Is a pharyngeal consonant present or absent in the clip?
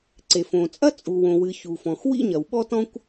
absent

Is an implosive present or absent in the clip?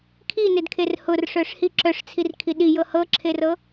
present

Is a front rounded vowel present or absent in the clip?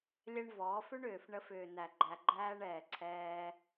present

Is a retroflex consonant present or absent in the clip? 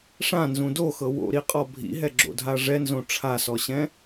present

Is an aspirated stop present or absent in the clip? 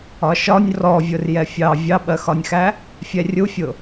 absent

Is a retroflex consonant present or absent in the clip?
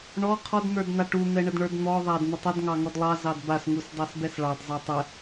present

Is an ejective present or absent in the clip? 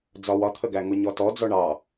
absent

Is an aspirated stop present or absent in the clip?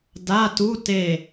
absent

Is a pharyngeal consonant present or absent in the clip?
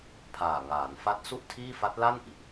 absent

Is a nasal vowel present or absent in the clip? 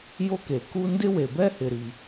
absent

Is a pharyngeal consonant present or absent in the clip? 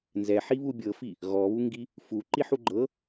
present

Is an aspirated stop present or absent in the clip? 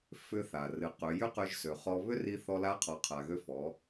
present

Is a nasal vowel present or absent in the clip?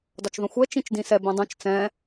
present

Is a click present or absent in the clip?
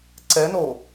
present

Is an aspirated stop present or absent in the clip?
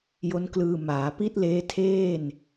present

